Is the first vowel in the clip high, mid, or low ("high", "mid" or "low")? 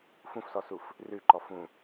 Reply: high